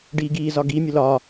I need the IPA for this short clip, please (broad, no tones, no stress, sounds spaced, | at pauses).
ɖ iː ɡ iː z ɒ ɡ i mʲ ʊ l ɒː